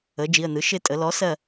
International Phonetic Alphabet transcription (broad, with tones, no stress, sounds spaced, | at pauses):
ə˩˥ d͡ʒ i˩˧˩ ə̯ n ɯ˩˥ ʃ ɪ˥˨ tʼ ə˩˥ l ɔ˩˥ s ɜ˥˨